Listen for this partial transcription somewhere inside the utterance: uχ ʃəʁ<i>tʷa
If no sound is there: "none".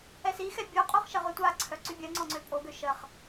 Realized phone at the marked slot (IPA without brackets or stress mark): y